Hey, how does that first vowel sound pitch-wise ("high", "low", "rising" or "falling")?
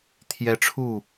high